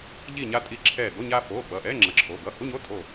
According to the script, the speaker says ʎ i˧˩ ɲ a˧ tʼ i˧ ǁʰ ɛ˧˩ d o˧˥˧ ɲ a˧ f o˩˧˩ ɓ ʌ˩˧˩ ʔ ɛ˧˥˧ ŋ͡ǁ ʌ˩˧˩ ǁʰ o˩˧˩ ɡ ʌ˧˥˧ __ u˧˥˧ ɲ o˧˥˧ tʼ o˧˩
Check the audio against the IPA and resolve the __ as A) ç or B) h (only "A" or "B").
B